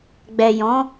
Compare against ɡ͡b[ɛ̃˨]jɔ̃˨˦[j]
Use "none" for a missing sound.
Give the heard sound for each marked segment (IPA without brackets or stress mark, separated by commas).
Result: ɛ˨, none